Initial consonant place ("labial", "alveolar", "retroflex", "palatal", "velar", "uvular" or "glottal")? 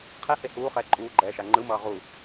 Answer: uvular